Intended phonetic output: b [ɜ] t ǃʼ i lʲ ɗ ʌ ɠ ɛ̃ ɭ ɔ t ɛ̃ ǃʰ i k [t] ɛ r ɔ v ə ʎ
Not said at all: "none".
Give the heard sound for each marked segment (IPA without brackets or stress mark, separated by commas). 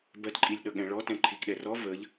ɜ, ɗ